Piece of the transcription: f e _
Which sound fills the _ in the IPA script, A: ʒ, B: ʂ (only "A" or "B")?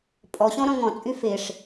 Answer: B